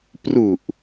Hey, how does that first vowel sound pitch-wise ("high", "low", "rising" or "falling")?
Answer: low